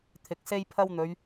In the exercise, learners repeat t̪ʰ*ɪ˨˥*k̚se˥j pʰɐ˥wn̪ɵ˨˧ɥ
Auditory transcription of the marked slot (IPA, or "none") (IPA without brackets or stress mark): ɪ˨˥